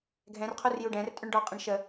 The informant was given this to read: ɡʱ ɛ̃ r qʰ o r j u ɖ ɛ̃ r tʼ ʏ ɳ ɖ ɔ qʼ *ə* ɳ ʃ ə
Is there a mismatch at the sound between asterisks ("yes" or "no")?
yes